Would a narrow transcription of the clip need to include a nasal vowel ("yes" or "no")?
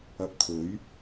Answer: no